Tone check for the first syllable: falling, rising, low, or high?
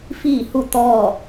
falling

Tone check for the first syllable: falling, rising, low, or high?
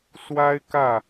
high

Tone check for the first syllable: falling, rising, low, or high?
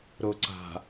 low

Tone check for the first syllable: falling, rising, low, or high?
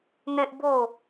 high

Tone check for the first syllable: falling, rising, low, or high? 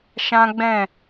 high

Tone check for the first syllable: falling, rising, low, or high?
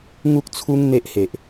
high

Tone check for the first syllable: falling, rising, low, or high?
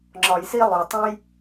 low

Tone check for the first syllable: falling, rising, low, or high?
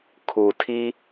low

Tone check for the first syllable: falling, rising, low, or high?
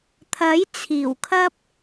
rising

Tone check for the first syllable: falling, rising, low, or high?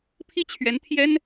falling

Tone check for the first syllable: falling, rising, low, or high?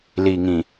low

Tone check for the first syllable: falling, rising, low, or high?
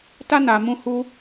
high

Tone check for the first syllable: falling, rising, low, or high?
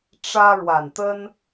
high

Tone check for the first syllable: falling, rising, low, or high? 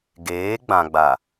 rising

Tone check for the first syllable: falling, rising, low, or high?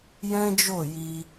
high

